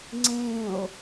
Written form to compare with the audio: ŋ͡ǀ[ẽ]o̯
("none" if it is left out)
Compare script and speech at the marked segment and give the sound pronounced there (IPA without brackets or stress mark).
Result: ẽ